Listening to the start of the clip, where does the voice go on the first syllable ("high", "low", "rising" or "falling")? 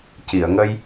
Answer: low